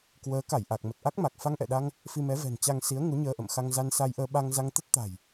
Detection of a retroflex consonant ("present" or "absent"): absent